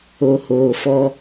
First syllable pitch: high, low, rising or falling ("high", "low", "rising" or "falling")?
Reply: low